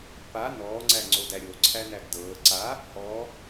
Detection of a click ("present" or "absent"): present